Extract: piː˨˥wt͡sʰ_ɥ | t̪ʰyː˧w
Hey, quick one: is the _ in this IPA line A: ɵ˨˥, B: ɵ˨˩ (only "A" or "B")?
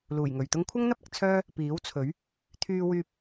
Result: A